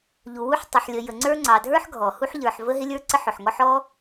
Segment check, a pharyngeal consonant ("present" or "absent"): present